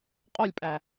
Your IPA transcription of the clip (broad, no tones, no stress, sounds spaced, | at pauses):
qʼ o lʲ pʼ æ